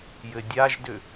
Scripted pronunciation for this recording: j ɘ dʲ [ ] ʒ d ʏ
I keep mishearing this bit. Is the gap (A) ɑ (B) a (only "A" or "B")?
B